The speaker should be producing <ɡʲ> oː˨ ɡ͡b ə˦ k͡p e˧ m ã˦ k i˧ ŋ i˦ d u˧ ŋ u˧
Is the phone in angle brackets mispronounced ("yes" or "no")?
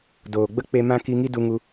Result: yes